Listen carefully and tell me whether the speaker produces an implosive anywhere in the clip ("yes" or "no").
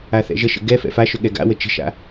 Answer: yes